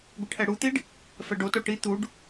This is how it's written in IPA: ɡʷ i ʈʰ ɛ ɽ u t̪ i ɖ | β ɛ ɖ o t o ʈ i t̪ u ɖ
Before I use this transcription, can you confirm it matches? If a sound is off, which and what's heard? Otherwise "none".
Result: β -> f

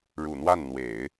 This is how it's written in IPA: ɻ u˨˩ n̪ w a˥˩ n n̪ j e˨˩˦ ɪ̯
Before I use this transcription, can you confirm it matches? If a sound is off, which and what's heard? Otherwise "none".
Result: j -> w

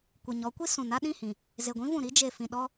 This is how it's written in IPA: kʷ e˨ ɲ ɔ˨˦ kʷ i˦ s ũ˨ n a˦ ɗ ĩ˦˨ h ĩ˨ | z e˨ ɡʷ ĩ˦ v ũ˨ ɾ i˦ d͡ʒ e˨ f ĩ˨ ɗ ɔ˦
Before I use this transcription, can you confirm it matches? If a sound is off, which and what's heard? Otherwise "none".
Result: none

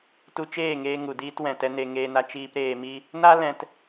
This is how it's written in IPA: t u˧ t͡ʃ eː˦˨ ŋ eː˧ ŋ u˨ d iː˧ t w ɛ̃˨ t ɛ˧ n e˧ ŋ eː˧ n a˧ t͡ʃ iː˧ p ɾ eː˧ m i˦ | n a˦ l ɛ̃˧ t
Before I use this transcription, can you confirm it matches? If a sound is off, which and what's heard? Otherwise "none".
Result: none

